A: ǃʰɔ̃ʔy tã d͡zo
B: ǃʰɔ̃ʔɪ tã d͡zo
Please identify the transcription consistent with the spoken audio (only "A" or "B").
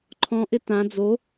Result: B